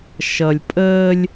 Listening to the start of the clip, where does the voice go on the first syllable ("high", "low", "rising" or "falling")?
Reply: low